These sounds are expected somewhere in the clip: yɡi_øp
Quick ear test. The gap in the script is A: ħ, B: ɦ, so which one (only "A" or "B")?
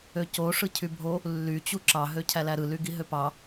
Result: B